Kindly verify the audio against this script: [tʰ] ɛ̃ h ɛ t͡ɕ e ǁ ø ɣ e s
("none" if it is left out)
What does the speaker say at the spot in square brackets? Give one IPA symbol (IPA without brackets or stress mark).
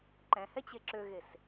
ǃ